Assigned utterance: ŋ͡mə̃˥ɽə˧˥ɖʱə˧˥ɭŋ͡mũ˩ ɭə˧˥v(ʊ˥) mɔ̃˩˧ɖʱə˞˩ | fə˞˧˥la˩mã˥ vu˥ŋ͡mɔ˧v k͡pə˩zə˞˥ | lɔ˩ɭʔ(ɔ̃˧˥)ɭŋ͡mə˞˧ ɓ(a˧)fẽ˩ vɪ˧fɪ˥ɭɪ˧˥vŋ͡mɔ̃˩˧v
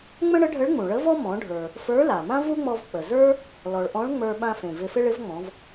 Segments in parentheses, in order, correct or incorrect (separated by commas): incorrect, correct, incorrect